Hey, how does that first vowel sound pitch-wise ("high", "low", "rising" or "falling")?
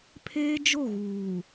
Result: high